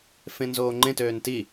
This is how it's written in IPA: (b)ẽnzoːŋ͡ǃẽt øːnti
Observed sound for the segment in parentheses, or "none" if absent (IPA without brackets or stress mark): f